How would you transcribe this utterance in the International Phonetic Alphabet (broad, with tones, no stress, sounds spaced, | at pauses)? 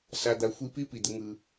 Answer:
s a˨ d̪ a˨ xʷ i˧ p i˦ p i˨ d̪ ɯ˧ ŋ ɯ˧